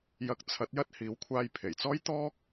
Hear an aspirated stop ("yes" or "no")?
yes